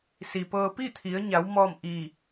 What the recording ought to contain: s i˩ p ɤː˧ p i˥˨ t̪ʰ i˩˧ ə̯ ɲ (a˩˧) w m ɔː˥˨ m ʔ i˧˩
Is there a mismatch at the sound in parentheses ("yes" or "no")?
no